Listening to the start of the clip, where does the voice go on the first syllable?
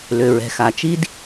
low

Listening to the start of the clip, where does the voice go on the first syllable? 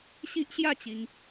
high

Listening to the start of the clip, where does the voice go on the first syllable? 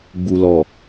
low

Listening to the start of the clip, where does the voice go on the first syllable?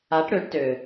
rising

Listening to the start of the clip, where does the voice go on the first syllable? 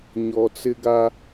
low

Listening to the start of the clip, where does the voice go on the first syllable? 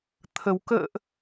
low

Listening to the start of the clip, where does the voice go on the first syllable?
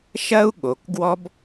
high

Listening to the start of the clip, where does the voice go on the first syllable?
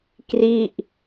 falling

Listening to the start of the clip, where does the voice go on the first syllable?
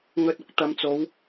low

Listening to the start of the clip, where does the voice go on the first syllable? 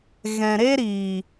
low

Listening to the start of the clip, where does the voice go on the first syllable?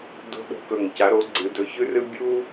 high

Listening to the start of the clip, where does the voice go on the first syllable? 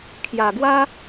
low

